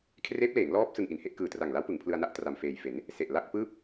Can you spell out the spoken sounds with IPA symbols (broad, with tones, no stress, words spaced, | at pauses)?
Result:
kʰreː˦˥p̚leː˩˦ŋlɔː˦˥p̚ sɯ˧ŋʔi˩˦nhe˥˩ʔ kɯː˨˩tra˨˩ŋla˦˥wpɯ˩˦ŋ pʰlɯ˧a̯na˥˩ʔ tra˨˩mfeː˨˩jfe˩˦n | se˨˩ʔla˥˩k̚pɯː˥˩p̚